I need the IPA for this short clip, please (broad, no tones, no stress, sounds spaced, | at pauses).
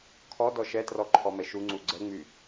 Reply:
kʰ ɔ d ɔ ʃ ɛ t r ɔ ǃʰ ɔ m ɛ ʃ u ŋ͡ǀ u ɡ͡ǀ ɛ ŋ͡m y